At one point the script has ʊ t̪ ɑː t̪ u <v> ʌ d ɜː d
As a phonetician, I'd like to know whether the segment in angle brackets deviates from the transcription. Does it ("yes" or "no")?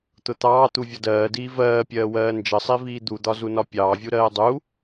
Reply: yes